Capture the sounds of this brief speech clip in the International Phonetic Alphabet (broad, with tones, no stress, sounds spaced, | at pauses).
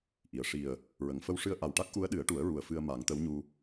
ʔ i˨˩˨ ə̯ ʂ i˨˩ ə̯ | ɹ ə˨˩˨ ŋ f ə˧ w ʂ ɨ˧ ə̯ ʔ a˨˩ w ʈ a˦˥ k̚ ʔ u˧˥ ə̯ ɗ ɨ˨˩˦ ə̯ ʈ u˨˩˦ ə̯ ɹ u˨˩ ə̯ f ɨ˧ ə̯ m a˨˩˦ ŋ t̪ ə˧˥ w ɲ u˧